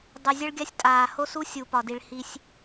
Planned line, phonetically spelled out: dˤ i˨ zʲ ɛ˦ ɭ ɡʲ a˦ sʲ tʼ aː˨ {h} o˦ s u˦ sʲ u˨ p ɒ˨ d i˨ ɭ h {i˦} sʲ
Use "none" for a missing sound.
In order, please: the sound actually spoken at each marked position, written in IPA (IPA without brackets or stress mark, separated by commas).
h, i˦